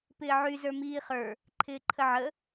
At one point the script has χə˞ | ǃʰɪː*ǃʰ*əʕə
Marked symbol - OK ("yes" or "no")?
yes